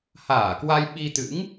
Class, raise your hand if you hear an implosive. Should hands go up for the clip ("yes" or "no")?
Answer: yes